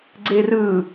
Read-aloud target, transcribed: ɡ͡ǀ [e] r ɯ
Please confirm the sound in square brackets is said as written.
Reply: yes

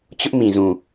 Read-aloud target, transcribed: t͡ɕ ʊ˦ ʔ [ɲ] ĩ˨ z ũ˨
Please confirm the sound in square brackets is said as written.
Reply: no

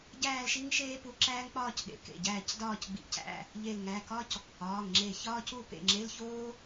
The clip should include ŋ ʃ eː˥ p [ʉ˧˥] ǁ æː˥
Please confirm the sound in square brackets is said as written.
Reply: no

